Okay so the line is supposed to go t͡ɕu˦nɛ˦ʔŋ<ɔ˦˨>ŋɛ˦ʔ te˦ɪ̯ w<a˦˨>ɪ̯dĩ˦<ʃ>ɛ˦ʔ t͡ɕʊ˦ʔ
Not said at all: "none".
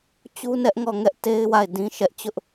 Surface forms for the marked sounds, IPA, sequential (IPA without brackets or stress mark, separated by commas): ɔ˦˨, a˦˨, ʃ